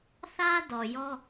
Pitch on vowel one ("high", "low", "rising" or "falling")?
high